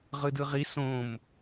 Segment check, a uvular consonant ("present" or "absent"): present